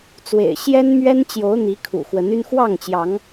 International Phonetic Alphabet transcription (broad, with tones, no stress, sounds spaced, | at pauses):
t͡s w ḛ˨˩ ɪ̯ ɕ j ɛ˦ n m ɥ ɛ˦ n t͡ɕ j o˨˦ ʊ̯ n̪ i˨˦ kʰ ṵ˨˩ x w ə˨˦ n y˦ n x w ɑ˥˨ ŋ t͡ɕ j ɑ˨˦ ŋ